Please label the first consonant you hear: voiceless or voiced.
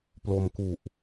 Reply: voiceless